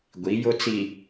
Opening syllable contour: rising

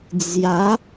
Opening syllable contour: rising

